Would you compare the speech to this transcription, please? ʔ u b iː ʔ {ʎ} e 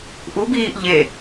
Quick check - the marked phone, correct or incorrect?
correct